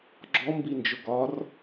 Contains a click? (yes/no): yes